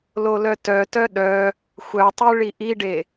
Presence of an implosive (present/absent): present